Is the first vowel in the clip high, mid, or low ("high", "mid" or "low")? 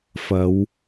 low